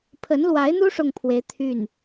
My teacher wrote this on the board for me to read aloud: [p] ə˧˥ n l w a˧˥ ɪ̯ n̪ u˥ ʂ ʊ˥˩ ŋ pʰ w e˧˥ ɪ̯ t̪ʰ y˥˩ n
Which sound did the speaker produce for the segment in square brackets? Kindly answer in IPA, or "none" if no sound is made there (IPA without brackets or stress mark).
pʰ